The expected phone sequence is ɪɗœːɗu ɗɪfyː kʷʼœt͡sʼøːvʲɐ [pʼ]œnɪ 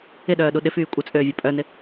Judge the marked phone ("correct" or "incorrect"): correct